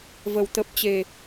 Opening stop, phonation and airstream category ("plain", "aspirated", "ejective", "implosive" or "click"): plain